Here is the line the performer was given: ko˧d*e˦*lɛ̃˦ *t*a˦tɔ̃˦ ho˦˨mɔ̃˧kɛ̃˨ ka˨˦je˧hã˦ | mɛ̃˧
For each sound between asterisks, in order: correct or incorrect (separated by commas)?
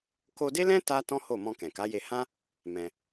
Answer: correct, correct